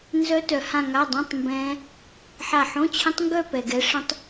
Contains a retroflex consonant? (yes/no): yes